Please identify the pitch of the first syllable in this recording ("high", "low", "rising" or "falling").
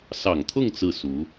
low